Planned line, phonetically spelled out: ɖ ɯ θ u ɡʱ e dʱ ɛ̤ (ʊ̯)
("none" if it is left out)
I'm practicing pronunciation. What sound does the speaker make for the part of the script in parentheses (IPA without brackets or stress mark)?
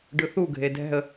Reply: ə̯